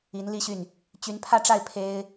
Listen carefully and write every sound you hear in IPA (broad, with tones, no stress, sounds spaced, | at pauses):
i˧˥ n l i˥˧ ɕ y˥˩ n | t͡ɕ y˧˥ n pʰ ä˥˧ ʈ͡ʂ a˥˩ ɪ̯ pʰ e˥ ɪ̯